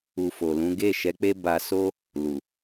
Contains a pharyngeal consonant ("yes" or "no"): no